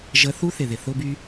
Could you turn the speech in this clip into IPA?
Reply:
ʒ ə˧ θ u˥ θ ɪ˩ ð ɪ˩ θ ʊ˥ b y˥

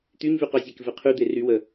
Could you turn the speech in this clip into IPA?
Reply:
t̪ y ɲ v y q œ zʲ ɛ k v e qʰ y d̪ e r y w ə

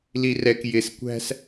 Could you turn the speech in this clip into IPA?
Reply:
l i r ɛ k j ɪ s kʷ æ̤ s

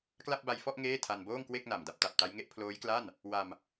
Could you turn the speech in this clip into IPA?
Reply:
k l a˥˩ p̚ b a˧ j f ɔ˥˩ ʔ ŋ eː˥˩ tʰ a˧ n b oː˥˩ ŋ k w e˥˩ k̚ n a˨˩ m d a˦˥ p̚ t a˨˩ p̚ t a˦˥ j ŋ e˦˥ ʔ pʰ l oː˦˥ j k l a˥˩ n | w a˧ m

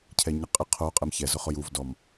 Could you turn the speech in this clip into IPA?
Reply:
cʰ ɛ ɲ ɪ qʼ ɪ qʰ o qʼ ɛ m ç ɛ z ʊ χ ʊ j u v d ɔ m

